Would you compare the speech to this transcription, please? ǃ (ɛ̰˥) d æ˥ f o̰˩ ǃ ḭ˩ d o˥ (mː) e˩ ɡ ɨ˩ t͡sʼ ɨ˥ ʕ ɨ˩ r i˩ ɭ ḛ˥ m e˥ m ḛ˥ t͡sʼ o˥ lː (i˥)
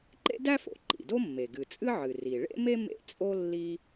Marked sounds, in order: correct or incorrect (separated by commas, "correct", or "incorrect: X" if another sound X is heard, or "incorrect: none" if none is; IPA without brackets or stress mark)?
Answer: incorrect: ḛ˥, correct, correct